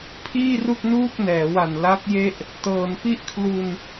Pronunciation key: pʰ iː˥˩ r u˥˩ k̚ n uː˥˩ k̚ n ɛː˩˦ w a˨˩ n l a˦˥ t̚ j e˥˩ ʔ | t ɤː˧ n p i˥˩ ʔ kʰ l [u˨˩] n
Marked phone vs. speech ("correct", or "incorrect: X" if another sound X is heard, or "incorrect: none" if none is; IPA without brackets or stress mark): incorrect: u˧